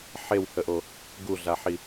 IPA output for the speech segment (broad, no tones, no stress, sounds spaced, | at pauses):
ħ e w h ə ʔ o | ɡ u ɮ a ħ i